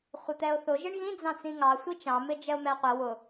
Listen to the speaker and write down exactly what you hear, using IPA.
χʷ ɪ t̪ ɛ o̯ θ ʊ ʒ ɪ ɳ ɣ ĩ d͡z ɑ̃ t͡s ĩ ŋ ɑ sʷ i t͡ʃ ɑ̃ m ɪ d͡ʒ ɛ o̯ m ɛ qʷ ɛ w ʊ

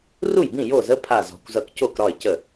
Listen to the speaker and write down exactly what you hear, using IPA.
r u˥˩ j b ĩ˥˩ j o˥˩ z ə˧˥˧ pʰ a˧˩ z ɔ̤˧˩ kʷ z ʌ˧˩ k c o˥˩ k ɾ ɒ˥˩ ɪ̯ c ə˥˩

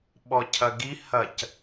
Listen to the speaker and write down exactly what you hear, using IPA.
ɓ ɔ cʰ ɐ ɡ i h ɐ c

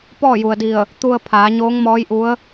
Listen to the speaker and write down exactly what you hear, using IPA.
p ɔː˥˨ j u˩ ə̯ d i˧˩ ə̯ | t̪ u˧ ə̯ pʰ aː˩˧ ɲ oː˧˥ ŋ m ɔː˧˥ j ʔ u˧˥ ə̯

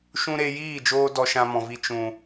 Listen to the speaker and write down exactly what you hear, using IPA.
ʃ ũ˧ ɾ e˧ j iː˦˨ d͡ʒ oː˧ d ɔ˧ ʃ ã˧ m ɔ̃˨ v i˧ t͡ʃ ũ˨

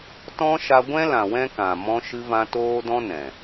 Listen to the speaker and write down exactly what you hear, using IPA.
t ɔ̃˦ ʃ a˧ ɡʷ ɛ̃˦ l ã˨ w ɛ̃˦ k ã˨ m ɔ̃˧ ʃ ɨ˧ v ã˧ t oː˦ d ɔ̃˦ n ɛ̃˨

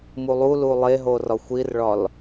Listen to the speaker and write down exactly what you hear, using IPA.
m u lˠ u l u lˠ e ɦ o r ɒ xʷ i r ɭ ɒ l

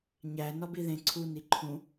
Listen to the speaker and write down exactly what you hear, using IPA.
ɲ æ n ɒ b i ð ẽ ǀʰ u n i ǃʰ ũ

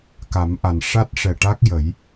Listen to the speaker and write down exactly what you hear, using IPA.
k a˨˩˦ m ʔ a˨˩ n ʂ a˦˥ t̚ ʂ ɛ˨˩ ʈ a˦˥ k̚ j ə˨˩˦ j

